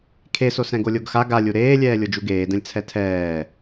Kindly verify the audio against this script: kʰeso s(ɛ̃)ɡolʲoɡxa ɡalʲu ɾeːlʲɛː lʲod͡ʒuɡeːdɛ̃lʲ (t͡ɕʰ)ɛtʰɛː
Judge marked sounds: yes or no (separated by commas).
yes, no